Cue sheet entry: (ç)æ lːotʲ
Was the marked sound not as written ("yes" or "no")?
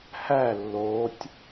yes